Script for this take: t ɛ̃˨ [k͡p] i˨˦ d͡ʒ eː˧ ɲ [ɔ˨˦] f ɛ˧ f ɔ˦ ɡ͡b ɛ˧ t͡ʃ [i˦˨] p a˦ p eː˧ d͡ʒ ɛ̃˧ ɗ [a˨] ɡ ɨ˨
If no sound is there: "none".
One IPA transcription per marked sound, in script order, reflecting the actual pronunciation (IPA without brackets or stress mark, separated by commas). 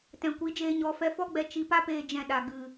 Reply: kʷ, ɔ˨˦, i˧, a˨